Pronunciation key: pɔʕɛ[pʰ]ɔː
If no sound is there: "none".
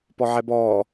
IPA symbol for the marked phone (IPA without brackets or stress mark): b